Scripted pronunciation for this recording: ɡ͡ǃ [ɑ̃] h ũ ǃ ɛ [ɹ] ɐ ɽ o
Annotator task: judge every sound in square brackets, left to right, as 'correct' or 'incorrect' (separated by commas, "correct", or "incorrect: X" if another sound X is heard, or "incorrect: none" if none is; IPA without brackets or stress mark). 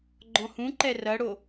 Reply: incorrect: ɔ̃, incorrect: r